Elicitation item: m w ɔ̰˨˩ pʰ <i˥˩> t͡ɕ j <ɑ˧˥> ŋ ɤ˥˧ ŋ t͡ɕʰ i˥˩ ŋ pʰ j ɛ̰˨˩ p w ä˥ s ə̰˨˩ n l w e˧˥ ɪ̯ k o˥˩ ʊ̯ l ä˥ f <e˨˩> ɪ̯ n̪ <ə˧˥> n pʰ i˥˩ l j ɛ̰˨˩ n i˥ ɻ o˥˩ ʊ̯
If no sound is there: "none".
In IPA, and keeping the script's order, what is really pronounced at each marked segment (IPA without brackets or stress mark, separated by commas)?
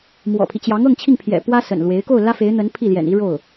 i˦, ɑ˧˥, e˧˥, ə˧˥